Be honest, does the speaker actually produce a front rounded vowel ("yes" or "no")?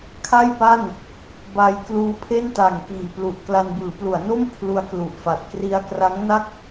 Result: no